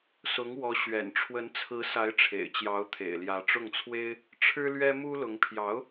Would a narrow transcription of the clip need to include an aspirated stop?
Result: yes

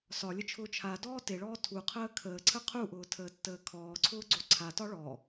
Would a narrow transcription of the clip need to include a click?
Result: yes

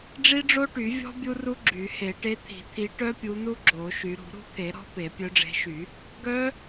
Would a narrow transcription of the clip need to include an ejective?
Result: no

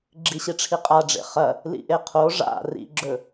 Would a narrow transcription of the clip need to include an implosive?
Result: no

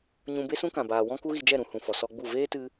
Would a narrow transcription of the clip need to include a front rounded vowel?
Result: no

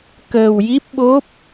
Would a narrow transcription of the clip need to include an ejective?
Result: no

